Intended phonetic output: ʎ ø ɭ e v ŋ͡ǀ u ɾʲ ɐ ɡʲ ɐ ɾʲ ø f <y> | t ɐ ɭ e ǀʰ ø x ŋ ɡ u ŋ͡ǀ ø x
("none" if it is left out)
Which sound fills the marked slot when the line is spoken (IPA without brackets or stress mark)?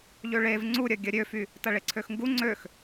y